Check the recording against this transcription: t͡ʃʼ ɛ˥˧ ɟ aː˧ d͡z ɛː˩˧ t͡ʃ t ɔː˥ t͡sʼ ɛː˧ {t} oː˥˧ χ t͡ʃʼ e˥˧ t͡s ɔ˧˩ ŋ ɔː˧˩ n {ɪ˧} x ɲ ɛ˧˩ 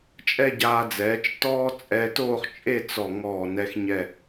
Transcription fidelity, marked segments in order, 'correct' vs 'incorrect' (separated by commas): correct, incorrect